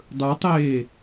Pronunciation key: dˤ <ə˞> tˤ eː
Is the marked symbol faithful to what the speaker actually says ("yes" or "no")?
yes